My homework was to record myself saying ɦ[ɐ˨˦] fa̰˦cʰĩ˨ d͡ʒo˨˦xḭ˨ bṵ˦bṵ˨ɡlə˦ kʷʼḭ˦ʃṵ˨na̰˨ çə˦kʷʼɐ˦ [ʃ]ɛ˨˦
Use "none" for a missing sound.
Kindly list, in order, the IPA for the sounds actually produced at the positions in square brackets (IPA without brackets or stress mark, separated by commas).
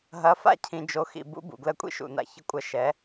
ɐ˨˦, ʃ